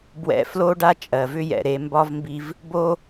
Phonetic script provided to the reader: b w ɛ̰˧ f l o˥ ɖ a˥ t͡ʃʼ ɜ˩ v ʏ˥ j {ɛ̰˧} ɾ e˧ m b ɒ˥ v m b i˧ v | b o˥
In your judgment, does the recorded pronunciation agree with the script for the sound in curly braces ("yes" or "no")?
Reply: no